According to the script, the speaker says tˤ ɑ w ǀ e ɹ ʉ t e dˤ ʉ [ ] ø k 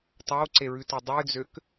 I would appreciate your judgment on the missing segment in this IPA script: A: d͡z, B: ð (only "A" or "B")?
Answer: A